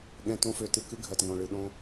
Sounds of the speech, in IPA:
ɠ ɛ̃˧ t õ˦ f ø˧ t ɨ˧ k ɨ˦ ɡʱ ɜ˨ t ŋ õ˨ ɭ ɨ˨ ɗ õ˧

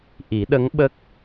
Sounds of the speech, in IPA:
ʔ i˨˩˦ ɗ ə˧˥ ŋ ɓ ə˦˥ k̚

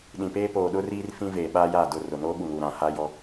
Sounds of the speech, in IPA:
ɗ ĩ˨ p eː˦ p oː˨ ɗ ʊ˦ r iː˦ r f ĩ˦ v eː˨ ɓ aː˦ j aː˦˨ d ʊ˦˨ r ʊ˨ n oː˦ ɓ u˨ ŋ u˨ ɾ ã˨ h a˦ j ɔ˦

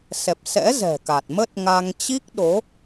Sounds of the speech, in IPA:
s ɛ˨˩ p̚ s ɛ̰˧˥ z ɛ̤˨˩ k a˨˩ t̚ m ə˦˥ t̚ ŋ a˧ ŋ t͡ɕ i˦˥ k̚ ɗ o˨˦

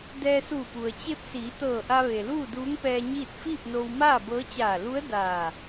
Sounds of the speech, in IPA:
d ɛː˧ s uː˧˩ p u˩ ə̯ t͡ɕ e˧ p̚ s iː˩˧ t̪ ɤː˧˩ ʔ a˧ ʋ e˩ l uː˥˨ d uː˧˥ ŋ p ɛː˧ ɲ iː˥˨ t̚ f iː˥˨ p̚ n o˧ w m aː˥˨ b ɤː˧˥ t͡ɕ aː˧˩ l u˧˥ ə̯ d aː˧˩

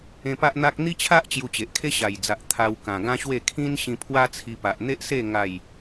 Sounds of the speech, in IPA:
ẽ˧ p a˦ ʔ n̪ a˦ k̚ n̪ i˦ t͡ɕʰ a˦ ʔ t͡ɕ j u˧ t͡ɕ e˨ ʔ kʰ e˦ ɕ a˨˩ j d͡z a˨ ʔ t̪ʰ a˧ w k ã˨˩ ɡ ã˦ ɕ w e˥˧ kʰ ĩ˦ n ɕ ĩ˧ pʰ w a˦ t͡sʰ i˧ p a˨ ʔ n̪ e˦ ʔ s e˥˧ ŋ a˥˧ j

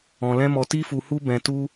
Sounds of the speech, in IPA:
ɔ̃˧ l ɛ̃˦ m ɔ˧ t i˦ f u˧ h u˦ b ɛ̃˧ t u˦

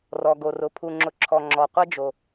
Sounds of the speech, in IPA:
r ɔ˩ ɡ o˩ r ʊ˩ pʰ u˩ ŋ͡ǁ ʊ˩ ǁʰ ɔ˩ ŋ͡ǁ ɔ˩ qʷ ɛ˥ d͡ʒ o˩

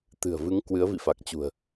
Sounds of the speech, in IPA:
t̪ ɨ̤˨˩ ə̯ v ɨ˨˦ ŋ k w ɨ˨˦ ə̯ v ḭ˧˨ f a˨˩ k̚ t͡ɕ ṳ˨˩ ə̯

